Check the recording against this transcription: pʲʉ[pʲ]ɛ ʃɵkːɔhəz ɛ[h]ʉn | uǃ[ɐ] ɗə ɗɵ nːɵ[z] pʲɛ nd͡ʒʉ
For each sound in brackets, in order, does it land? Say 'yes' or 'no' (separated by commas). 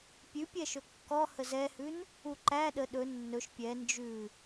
yes, yes, no, no